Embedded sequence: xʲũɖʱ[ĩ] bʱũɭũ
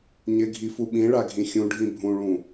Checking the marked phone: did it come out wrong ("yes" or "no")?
no